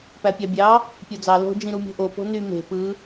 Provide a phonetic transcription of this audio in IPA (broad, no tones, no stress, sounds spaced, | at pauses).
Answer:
p æ pʲ ɑ bʲ ɑ | pʲ o d͡z ɑ l o̤ d͡ʒ ĩ ɾ u mʲ o̤ ʔ o p o̤ n y m e̤ p ɯ